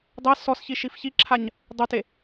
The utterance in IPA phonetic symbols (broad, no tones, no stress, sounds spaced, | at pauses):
dˤ ɛ s ɔ s ç i ʃ i f ç i ǁʰ a ɲ | dˤ ʊ t e